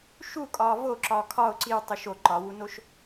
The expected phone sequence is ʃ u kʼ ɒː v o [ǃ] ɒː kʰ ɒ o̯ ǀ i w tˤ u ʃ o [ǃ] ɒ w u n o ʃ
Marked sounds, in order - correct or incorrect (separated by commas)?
incorrect, correct